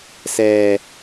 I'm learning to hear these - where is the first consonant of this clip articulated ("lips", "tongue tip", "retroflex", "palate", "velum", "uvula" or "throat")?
tongue tip